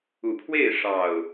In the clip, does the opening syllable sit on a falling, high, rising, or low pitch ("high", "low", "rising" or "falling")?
low